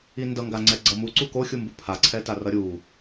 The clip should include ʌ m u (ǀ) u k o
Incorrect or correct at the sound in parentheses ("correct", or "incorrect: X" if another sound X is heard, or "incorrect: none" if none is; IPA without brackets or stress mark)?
correct